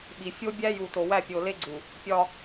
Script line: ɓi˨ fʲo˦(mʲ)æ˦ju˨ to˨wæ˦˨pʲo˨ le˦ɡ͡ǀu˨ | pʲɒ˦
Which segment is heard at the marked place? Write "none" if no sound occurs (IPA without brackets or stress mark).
bʲ